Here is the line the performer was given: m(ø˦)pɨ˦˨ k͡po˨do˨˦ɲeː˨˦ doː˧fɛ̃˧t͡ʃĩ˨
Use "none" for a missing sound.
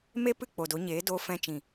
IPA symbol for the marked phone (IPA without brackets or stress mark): e˦